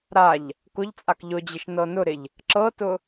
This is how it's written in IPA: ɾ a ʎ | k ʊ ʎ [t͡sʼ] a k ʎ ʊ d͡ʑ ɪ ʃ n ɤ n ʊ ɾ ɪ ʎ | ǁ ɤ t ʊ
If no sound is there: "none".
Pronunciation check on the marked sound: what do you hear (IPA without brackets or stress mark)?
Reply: t͡sʼ